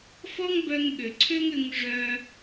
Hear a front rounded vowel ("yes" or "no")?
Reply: yes